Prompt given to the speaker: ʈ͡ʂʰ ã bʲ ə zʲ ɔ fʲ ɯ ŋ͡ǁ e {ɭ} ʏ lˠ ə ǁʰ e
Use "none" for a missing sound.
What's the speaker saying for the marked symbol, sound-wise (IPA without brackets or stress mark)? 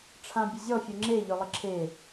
ʎ